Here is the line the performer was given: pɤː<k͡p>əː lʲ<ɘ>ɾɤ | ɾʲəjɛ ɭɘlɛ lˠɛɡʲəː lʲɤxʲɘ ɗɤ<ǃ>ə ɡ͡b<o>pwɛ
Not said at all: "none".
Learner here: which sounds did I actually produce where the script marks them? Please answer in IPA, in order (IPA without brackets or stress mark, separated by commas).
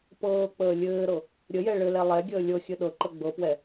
k͡p, ɘː, ǃ, ɤ